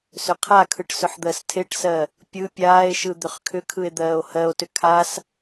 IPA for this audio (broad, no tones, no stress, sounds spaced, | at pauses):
s ʏ qʰ a kʰ ɯ ʈ s ʏ ħ d̪ ɜ s tʰ e ʈ s ɜ | pʲ ɯ pʲ aː e̯ ʃ ɯ d̪ ʏ χ kʰ ʏ kʰ ɯ e̯ d̪ ɜː o̯ h ɜ o̯ t ʏ kʰ a s